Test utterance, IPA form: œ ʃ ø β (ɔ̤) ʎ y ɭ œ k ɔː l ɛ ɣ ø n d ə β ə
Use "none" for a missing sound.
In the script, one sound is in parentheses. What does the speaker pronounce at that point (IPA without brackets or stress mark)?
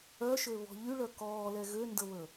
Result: ɔ̤